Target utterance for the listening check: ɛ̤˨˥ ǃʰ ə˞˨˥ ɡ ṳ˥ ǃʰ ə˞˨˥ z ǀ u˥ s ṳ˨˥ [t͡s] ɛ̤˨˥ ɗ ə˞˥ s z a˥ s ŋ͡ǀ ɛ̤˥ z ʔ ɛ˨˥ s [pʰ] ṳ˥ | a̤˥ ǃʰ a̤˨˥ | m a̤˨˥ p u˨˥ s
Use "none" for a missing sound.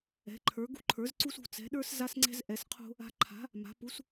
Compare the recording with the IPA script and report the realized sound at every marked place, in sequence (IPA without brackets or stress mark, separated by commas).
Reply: t͡s, qʰ